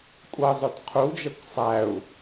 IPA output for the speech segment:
kʷʼ ʌ zˤ ʊ d qʰ u d͡ʒ ʌ kʷ sˤ æ u̯

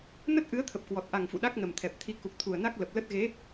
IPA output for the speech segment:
n ə˦˥ t̚ ʔ ɨ˨˦ ə̯ t̪ʰ ə˨˩ p̚ k w ɔ˨˩ t̚ ʔ a˨˩ ŋ f ṵ˧˨ ɗ a˦˥ k̚ n ə˨˩ m t̪ʰ ɛ˨˩ p̚ t̪ʰ i˨˦ k u˨˩ k̚ t̪ʰ u˨˩ ə̯ n a˦˥ k̚ l ə˨˩ p̚ l ə˦˥ t̚ ɣ e˨˦

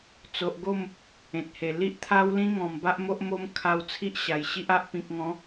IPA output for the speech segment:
t͡s o˨ ʔ ɡ o˥˧ m | ẽ˨ t̚ h e˨˩ l i˦ ʔ t̪ʰ a˦ w l ĩ˦ ŋ ɔ̃˨˩ m b a˦ ʔ m o˦ ʔ m o˦ m kʰ a˧ w t͡sʰ i˦ ʔ ɕ a˨˩ j ɕ i˦ ʔ a˦ ʔ p ĩ˨ k̚ ŋ ɔ̃˨˦

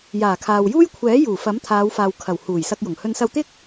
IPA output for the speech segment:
j aː˨˩ kʰ aː˨ w j uː˥ j kʷʰ ɛː˨˥ j uː˨˩ f ɐ˨˥ m t̪ʰ aː˨˧ w f aː˨ w kʰ ɐ˨˩ w h uː˨˩ j s ɐ˧ k̚ j ʊ˨˩ ŋ h ɵ˧ n s ɐ˧ w t̪ ɪ˥ k̚

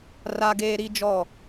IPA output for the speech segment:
r a˦ ɡ eː˦ ɾ i˦ d͡ʒ ɔ˦˨

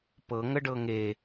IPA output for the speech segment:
p ɤ ŋ ə ɖ ɤ ŋ e

